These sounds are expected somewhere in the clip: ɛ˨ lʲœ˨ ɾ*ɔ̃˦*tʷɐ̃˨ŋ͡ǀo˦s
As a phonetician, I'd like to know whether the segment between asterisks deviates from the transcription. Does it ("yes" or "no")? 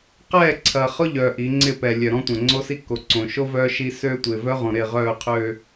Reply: no